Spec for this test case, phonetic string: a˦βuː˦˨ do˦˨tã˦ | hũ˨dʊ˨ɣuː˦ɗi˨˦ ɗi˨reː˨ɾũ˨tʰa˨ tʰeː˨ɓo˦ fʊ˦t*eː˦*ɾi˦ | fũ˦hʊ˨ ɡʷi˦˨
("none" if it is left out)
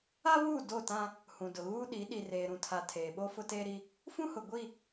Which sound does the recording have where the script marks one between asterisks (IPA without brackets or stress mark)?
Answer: eː˦